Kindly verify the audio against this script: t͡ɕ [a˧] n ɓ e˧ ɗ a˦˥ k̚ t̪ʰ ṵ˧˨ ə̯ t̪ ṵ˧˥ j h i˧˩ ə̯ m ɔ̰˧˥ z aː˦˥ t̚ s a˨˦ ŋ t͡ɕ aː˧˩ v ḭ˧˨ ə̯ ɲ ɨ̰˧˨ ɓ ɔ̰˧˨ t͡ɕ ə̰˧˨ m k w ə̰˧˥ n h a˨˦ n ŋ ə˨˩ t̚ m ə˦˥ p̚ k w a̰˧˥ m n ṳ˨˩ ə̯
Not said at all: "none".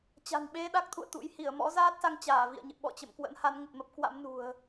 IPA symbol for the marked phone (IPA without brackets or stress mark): a̤˨˩